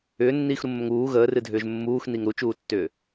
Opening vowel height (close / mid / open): close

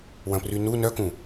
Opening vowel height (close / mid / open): open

